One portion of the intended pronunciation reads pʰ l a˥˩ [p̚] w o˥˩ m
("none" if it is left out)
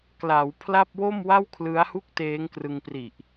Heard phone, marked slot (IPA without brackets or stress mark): p̚